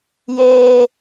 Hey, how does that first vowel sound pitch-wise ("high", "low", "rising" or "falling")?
high